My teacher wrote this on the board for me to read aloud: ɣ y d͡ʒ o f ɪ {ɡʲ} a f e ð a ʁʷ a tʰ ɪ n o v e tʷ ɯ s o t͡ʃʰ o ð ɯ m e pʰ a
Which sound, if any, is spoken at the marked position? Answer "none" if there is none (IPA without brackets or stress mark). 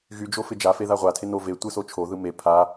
d͡ʒ